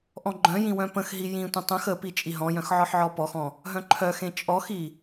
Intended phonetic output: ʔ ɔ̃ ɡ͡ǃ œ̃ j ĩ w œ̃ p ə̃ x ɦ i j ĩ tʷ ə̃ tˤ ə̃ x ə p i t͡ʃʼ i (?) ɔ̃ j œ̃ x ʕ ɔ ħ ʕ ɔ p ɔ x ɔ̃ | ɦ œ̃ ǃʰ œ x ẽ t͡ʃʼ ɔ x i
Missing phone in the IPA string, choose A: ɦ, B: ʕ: A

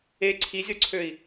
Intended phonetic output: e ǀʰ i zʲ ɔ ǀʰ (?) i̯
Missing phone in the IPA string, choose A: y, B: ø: B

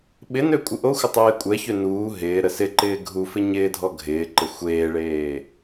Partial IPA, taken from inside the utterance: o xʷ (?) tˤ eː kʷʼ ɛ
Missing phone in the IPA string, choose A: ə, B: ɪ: A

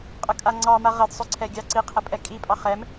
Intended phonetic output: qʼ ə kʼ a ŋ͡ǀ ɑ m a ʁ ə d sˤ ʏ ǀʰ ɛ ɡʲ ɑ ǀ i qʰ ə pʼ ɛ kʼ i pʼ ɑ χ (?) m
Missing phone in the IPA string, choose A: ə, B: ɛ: B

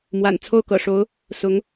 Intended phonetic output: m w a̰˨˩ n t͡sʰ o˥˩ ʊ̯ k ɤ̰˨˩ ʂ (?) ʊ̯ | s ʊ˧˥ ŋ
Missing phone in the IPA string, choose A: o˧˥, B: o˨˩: A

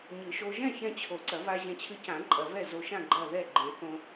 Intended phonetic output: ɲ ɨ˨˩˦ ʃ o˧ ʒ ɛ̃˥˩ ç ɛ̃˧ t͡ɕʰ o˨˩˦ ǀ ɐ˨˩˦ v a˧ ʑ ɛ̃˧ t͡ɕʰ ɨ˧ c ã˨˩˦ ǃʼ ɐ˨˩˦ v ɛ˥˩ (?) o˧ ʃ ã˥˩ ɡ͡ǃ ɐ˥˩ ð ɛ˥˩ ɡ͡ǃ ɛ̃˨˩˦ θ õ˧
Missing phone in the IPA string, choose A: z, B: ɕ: A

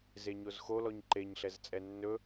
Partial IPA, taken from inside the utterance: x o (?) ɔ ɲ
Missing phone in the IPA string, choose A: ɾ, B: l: B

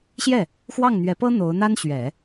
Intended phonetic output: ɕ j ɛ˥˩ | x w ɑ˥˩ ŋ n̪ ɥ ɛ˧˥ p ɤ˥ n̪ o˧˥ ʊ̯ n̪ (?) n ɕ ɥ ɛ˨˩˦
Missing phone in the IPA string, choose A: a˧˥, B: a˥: B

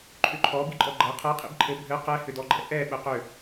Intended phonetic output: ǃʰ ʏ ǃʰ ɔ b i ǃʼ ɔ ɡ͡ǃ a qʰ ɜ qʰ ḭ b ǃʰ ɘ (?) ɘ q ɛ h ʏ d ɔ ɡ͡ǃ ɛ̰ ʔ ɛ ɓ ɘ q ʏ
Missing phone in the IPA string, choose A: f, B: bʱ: B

